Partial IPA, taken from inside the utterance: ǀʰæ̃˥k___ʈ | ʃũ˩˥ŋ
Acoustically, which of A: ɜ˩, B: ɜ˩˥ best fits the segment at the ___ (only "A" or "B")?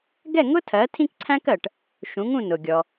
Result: A